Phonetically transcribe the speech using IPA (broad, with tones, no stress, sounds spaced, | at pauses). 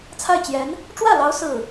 t͡sʰ a˥˩ ɪ̯ t͡ɕ j ɛ˧˥ n | ʈ͡ʂ w ä˥˩ l ɑ˧˥ ʊ̯ s ɹ̩˥˩